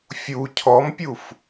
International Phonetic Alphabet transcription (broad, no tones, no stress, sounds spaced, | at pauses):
fʲ u cʰ ɔ m pʲ u f